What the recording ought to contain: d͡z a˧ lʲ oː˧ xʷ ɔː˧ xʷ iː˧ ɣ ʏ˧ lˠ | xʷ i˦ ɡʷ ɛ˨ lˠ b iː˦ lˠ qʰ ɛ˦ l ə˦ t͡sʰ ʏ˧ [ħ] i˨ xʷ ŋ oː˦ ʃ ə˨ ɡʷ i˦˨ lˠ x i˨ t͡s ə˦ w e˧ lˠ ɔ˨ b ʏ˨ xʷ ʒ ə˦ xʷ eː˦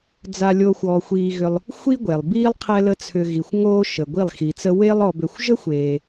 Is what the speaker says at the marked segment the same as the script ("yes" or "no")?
no